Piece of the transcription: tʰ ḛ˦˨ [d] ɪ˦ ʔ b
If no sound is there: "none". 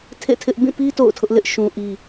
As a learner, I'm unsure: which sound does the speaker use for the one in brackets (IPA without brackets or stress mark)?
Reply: tʰ